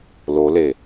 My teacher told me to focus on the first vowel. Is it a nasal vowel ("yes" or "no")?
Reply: no